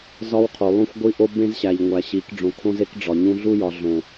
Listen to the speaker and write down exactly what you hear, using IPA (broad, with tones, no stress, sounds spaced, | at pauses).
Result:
z ɒ˦ w qʰ o˨ lˠ ũ˦ xʷ ɡʷ i˦ ʔ o˦ b ẽ˦ z ɕ æ˨ ʎ ŋʷ æ˨ ɕ i˨˦ k ɖ͡ʐ õ˨ kʰ õ˦ z e˦ k ɖ͡ʐ ɒ˨ ɲ ũ˦ ɮ u˦ j ɒ˨ ɮ õ˨